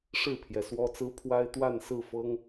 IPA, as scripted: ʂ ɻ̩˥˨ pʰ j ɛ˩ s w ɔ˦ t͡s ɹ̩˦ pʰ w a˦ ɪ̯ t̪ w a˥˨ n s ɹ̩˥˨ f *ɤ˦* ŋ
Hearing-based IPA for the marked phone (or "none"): ɤ˦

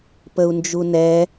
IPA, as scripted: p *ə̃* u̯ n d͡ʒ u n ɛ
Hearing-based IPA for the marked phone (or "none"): ə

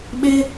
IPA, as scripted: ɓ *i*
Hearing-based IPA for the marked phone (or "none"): ɪ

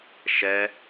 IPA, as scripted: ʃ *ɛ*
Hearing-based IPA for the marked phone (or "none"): ɛ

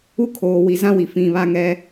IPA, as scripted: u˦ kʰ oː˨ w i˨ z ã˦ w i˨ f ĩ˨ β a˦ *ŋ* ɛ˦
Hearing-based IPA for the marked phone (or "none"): ŋ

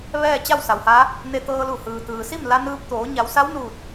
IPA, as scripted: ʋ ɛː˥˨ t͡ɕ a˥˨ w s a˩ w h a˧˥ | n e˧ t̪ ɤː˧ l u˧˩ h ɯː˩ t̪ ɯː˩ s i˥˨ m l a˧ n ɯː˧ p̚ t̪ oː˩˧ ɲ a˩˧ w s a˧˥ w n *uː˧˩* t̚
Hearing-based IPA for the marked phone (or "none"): uː˧˩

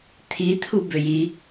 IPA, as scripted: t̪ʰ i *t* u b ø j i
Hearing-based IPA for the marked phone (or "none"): t̪ʰ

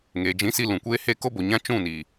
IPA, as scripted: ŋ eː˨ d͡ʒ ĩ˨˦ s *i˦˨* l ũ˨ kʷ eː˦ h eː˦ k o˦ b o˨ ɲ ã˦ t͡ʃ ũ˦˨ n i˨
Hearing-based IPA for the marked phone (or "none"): i˧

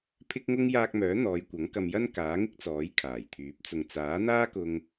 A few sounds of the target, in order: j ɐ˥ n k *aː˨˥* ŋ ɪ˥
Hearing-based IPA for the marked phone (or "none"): aː˨˥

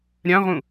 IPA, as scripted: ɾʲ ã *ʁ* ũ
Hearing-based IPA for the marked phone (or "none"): ʁ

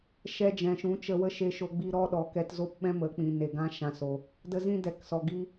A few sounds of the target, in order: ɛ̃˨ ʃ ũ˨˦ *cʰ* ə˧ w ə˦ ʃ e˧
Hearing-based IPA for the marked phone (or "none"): t͡ʃ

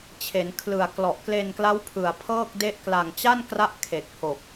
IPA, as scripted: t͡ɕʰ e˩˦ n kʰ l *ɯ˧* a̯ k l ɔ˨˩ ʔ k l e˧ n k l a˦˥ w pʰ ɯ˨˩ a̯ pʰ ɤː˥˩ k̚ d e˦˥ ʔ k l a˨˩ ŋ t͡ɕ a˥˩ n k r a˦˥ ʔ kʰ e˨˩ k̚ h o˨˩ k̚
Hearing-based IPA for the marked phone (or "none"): ɯ˨˩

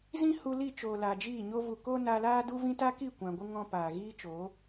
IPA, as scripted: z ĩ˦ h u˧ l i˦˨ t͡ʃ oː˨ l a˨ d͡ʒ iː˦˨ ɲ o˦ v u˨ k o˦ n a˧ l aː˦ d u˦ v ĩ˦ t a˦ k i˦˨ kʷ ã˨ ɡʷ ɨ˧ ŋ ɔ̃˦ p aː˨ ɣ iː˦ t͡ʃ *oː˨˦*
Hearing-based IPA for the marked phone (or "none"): oː˨˦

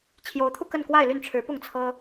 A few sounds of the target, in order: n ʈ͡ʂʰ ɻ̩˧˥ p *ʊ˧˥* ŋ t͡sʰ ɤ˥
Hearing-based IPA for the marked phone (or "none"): ʊ˥˩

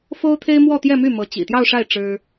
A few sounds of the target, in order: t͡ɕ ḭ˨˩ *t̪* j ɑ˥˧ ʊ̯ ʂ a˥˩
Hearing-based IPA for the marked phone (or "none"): t̪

